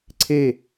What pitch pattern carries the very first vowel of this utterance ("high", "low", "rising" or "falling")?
falling